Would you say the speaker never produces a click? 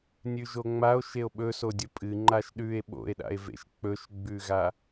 no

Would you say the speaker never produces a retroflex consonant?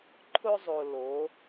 yes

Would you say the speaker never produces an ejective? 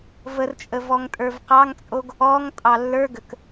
no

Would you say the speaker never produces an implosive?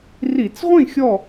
yes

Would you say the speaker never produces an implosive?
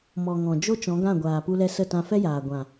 yes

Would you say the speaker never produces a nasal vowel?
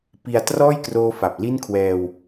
yes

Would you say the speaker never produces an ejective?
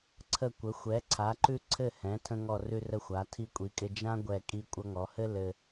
no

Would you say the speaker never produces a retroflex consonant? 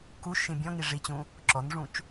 no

